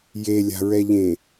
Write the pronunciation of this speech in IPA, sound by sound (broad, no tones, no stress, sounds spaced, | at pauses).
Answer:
j e lʲ a̤ ɹ ɛ ʎ ẽ